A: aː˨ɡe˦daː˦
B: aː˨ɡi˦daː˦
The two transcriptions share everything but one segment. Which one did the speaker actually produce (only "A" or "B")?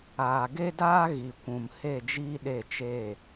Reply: A